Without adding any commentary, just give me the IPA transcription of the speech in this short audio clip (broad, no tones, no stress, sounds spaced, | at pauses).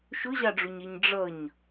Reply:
ʃ ʊ ʑ ɑ ɖ͡ʐ u ɲ ɛ ɲ ɖ͡ʐ ʌ ɲ